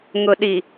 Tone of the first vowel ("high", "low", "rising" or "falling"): low